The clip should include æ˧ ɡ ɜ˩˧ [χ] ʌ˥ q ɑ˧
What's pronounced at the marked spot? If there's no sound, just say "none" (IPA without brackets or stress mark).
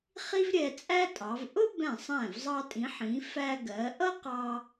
ʔ